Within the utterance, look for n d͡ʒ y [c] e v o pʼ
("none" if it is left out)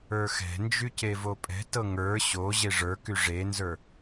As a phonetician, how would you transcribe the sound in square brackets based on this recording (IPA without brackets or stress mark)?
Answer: c